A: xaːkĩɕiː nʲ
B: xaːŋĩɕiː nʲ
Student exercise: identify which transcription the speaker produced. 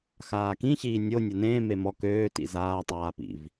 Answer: A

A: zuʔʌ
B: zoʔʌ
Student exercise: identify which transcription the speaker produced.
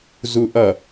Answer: A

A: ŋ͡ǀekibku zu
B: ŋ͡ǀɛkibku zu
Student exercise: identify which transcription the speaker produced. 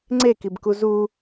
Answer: A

